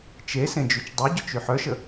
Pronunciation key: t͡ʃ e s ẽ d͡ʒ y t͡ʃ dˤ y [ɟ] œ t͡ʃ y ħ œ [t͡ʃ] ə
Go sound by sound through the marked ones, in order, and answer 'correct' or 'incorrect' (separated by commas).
correct, incorrect